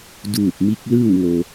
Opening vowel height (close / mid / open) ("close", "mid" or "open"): close